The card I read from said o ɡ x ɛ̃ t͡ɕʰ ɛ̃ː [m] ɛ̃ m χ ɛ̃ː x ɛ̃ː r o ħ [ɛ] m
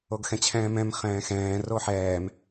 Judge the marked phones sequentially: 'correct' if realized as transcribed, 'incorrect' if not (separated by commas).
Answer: correct, incorrect